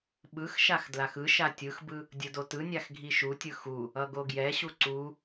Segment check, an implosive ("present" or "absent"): present